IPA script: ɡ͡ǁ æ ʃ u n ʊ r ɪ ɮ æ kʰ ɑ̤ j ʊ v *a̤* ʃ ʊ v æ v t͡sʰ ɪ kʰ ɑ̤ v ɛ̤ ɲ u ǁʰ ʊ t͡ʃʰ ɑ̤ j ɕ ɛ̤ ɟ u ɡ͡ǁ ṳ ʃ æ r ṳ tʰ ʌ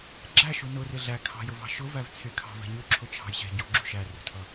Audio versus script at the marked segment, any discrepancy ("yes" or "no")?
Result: yes